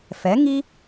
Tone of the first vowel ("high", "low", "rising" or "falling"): rising